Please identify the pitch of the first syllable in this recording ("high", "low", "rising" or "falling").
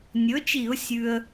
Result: rising